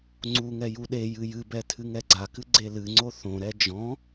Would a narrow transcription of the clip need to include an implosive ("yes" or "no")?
yes